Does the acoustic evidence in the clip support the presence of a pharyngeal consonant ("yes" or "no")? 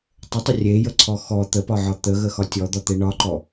yes